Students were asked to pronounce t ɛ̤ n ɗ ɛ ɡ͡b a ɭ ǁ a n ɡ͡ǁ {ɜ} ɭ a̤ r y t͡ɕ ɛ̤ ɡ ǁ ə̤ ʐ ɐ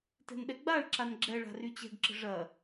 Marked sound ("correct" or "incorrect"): incorrect